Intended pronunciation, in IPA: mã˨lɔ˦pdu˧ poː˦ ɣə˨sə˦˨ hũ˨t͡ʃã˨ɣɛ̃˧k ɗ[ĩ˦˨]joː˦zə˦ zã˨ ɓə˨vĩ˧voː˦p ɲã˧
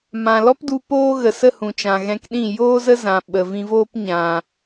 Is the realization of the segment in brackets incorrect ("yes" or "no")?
no